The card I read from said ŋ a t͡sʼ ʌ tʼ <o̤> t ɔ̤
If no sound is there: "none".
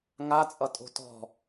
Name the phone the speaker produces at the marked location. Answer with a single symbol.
o̤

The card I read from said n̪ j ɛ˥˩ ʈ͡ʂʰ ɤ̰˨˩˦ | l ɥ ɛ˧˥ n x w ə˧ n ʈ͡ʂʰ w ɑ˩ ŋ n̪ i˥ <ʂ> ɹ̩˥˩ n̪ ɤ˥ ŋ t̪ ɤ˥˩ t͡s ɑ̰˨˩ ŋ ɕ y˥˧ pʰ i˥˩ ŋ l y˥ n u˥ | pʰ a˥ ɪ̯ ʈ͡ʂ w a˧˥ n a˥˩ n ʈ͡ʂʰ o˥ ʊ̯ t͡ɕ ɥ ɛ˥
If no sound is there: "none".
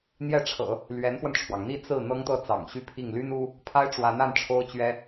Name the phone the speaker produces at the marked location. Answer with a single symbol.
t͡s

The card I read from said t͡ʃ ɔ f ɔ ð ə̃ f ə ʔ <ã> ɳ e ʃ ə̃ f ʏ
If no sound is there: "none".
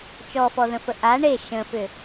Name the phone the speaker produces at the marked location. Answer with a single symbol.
a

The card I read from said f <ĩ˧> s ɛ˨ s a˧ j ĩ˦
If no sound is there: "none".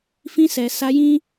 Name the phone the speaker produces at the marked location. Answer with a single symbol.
ĩ˧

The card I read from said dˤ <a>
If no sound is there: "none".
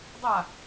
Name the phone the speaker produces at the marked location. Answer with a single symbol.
a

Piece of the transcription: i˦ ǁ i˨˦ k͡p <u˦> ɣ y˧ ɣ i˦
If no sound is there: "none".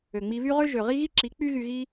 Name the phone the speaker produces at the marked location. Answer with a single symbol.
y˦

